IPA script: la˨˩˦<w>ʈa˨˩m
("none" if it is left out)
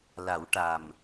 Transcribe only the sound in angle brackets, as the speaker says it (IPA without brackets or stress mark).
w